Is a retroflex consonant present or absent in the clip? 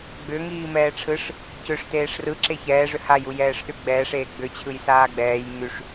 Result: present